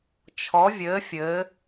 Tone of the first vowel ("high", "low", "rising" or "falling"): rising